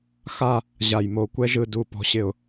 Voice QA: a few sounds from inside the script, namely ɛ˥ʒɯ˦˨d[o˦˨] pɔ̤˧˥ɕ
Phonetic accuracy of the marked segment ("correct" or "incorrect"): incorrect